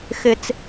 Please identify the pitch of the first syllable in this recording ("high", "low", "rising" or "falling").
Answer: low